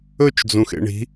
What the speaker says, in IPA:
ɵ t͡ʃ d͡z ũ x ḛ ɳ i̤

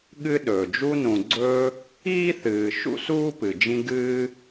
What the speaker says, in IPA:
ɠ ɨ˦ ɗ ɵː˩ d͡ʒ u˦ n ũ˨ ɡ͡ǀ ɵː˦ | iː˥ θ ɨː˨ ʃ ṵ˥ s uː˥ p ɨ˩ d͡ʒ ĩ˦ ɡ ɨː˦

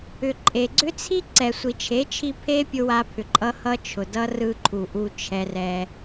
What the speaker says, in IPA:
ʏ˨ ǃʼ e˨ ɡ͡ǀ ʏ˦ t͡sʰ i˦ ǀ ɛ˨ sʷ i˨ t͡ʃʰ e˨˦ t͡ʃʰ i˧ pʰ e˦ pʲ ʊ˧ w a˧ pʰ ʏ˨ ǃʼ ʌ˧ h ʌ˧ t͡ʃʰ ʊ˨ d ʌ˦ r ɯ˧ ǃʰ u˨ ʔ u˧ t͡ʃʰ ɛ˧ r ɛ˧

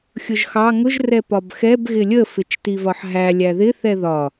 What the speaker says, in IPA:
xʲ ʊ ʒ x ɑ ŋ ʊ ʒ r ɛ p ɒ b x ɛ b ɣ ɪ lʲ ə f ɪ t͡ʃ t i v ɒ ħ ɦ æ lʲ æ ð ɪ θ ɛ ð ɒ

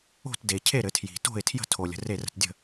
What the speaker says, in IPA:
o̤˥˩ t d e˩ cʰ e˥˩ ɾ ɘ˩ tʰ j i̤˩ t o̤˥˩ ɪ̯ tʰ j ə̤˥˩ tʰ o˩ lʲ ə̤˩ r e˥˩ r ə̤˥˩ t dʲ ə̤˥˩

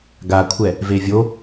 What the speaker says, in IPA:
ɡ a kʷʰ ɛ | v e vʲ o

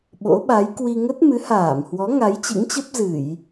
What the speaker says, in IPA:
ɓ o̰˧˥ ɓ a˨˦ j k w i˧ ŋ ə˦˥ t̚ m ɨ˨˦ h aː˧˩ m h w ɔ˨˦ ŋ a˨˦ j t͡ɕ ɨ̰˧˥ ŋ t͡ɕ ə˦˥ p̚ z ɨ˧˩˨ j

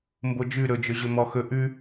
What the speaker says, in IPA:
m b o d͡ʒ ʉ ɾ ɵ d͡ʒ ɵ ʑ ɵ m ɔ x ɵ ʔ ʉ

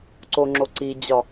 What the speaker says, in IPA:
ǀ o ŋ͡ǁ o ǀ i d͡ʑ ɒ

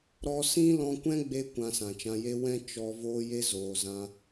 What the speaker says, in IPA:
ɾ ɔ˧ s ĩ˦ l ɔ̃˧ kʷ ɛ̃˦ ɡ͡b e˧ kʷ ã˧ s ã˨ t͡ʃ ã˧ j e˦ w ɛ̃˦ t͡ʃ ɔ˧ v oː˧ j e˧ z oː˨ z ã˧

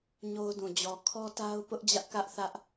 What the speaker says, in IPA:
ɲ o˦ ʊ̯ d ũ˨ d͡ʑ ɔ˨ kʰ ɔ˦ t a˦ ʊ̯ p ʊ˦ ʔ d͡ʑ ä˦ ʔ k ä˦ ʔ θ ä˦ ʔ

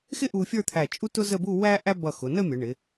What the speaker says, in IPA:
x ɪ˥ ʔ u˧ fʲ ə˞˥˧ t̪ʰ æ˧˩ t͡ʃʼ u˥ t ʊ˥ z ə˥˧ b u˥˧ w æ˥ ʔ æ˥ b ʌ˧˩ x ʊ˩˧ n ə˥˧ mʲ ə˩˧ ɳ ɪ˩˧

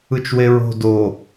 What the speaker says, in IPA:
ɯ t͡ʃ w e ɹ o̤ d o

